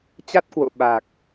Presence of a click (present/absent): absent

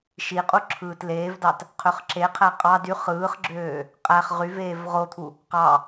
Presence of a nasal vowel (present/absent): absent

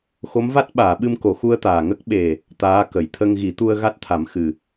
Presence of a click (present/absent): absent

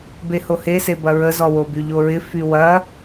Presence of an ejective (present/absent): absent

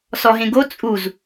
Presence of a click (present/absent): absent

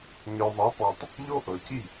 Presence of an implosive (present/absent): absent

